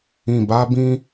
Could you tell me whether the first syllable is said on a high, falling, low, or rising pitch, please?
low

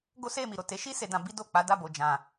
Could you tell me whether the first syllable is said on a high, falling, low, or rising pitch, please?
high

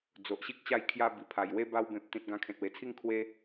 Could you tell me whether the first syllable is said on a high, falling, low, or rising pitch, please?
low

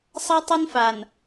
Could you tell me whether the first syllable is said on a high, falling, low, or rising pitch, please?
high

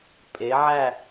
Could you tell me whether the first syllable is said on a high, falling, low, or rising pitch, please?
rising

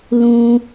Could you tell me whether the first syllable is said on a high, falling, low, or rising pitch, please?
high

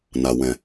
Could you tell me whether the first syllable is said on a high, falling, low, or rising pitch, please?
low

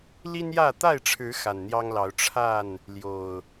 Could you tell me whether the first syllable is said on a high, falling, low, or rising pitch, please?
high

